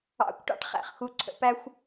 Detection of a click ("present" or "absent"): present